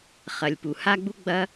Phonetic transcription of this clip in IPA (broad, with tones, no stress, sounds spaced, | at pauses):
χ ɐ˩ lʲ p u˩ h a˥ ɡ͡b u˥ ɡ͡b ɐ˧˥